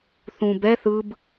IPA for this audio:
θ ũ b ɛ θ ɯ b

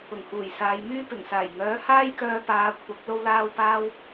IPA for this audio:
ʊ˨˩ ŋ h uː˨˩ j s aː˨˧ j m yː˥ p ɪ˨˩ ŋ s aː˨˩ j ŋ œː˨˥ h aː˥ j k œː˧ p aː˨˧ kʷʰ ɐ˨˥ k̚ l o˧ w l aː˧ w p aː˥ w

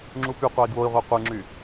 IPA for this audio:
ŋ͡ǁ u p y qʷ ɑ i̯ ɡ w o i̯ ʁʷ ɑ qʷ ɯ ŋ͡ǁ y

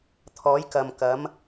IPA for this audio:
t̪ʰ ɔː˨˥ j k ɐ˨ m k ɐ˨˥ m

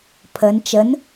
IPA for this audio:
pʰ ə n t͡ʃ ə n

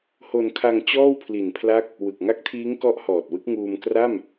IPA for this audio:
h o˧ n kʰ a˧ ŋ t͡ɕ ɔː˥˩ w pʰ l i˨˩ n pʰ l a˦˥ k̚ | w ɯ˨˩ k̚ ŋ a˦˥ k̚ tʰ iː˦˥ ŋ k ɔ˦˥ ʔ h ɔː˨˩ t̚ w ɯ˦˥ k̚ ŋ uː˧ m k r a˥˩ m

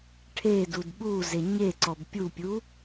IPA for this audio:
ʈʰ e d u d ɓ u z e ɲ e ǀ ɔ b pʲ u pʲ u

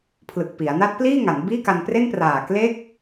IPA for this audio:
pʰ l ɯ˨˩ k̚ p i˩˦ a̯ n a˦˥ t̚ p l iː˥˩ ŋ a˩˦ n b iː˥˩ k a˧ n p r e˥˩ n p r aː˨˩ k l e˥˩ k̚

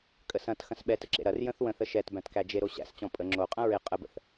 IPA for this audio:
kʼ ə s ɐ̃ t x ɐ̃ s ɓ ɛ t ə ǁ ḛ ɾ ɐ r j ə̃ θ w ə̃ θ ə ʃ ɛ t b æ̃ t k æ d͡ʒ e ɾ o ɕ æ̰ s t͡ɕ ɔ̃ pʼ ə ŋ͡ǁ o qʼ ɐ̃ ɹ ɪ qʼ ə b ə̰ θ

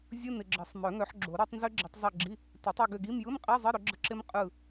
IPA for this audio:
zʲ ɯ˧˥˧ n ɪ˨ ɡ͡ǁ ə˨˩˦ sˤ m œ˨˩˦ ŋ œ˨˦ ħ ɡ͡ǁ o˨˩˦ ɾ i˨˦ tˤ n z ʏ˦˥ ɡ͡ǁ i˨˦ tˤ zˤ ɯ˦˨ ɡ͡ǁ i˧˥˧ | t ɪ˨˩˦ tˤ o˦˨ ɡ ʏ˦˨ ɡ i˧˥˧ m j ɯ˧˥˧ m qʼ i˧˥˧ zˤ ɪ˧˥˧ ɾ ʏ˨˦ ɡ͡ǁ ə˦˨ ǁ ɪ˦˥ m qʼ ɯ˦˨

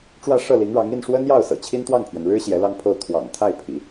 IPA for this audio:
ʈ͡ʂ w ä˥˧ ʂ ɤ˥˩ l i˧˥ ŋ ɻ ɑ˧˥ ŋ i˥˩ n ʂ w ə˥ n j ɑ˥˩ ʊ̯ s ɤ̰˨˩ t͡ɕʰ i˥ n t̪ w ɑ˥˩ ŋ pʰ ɥ ɛ˩ n ɻ ɻ̩˥ ɕ j ɛ˧˥ l ɑ˥˧ ŋ pʰ o˥˩ ʊ̯ t̪ʰ w ɑ̰˨˩ ŋ t̪ʰ a˥˩ ɪ̯ pʰ ḭ˨˩˦

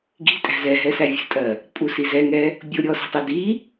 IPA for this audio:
ɡ i̤ tʼ æ̤ z ɛ ɦ ɛ s æ vʲ ə̤ tʼ ɜ | pʼ u s i z ɛ ŋ ɛ | bʲ ʊ ɾʲ ɔ s i̤ tˤ ɪ d i

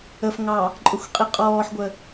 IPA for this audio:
ə f ŋ ɑ | ǃʼ ʊ xʷ qʼ i qʼ ɔː ħ ɡʷ ə

